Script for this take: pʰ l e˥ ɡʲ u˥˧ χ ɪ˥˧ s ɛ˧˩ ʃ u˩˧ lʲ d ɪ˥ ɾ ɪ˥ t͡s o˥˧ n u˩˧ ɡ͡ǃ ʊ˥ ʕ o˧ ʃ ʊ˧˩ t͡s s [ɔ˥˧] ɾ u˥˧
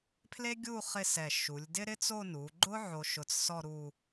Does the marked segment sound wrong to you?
no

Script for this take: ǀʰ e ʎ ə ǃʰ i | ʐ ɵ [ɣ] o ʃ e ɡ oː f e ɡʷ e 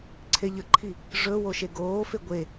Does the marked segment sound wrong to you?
yes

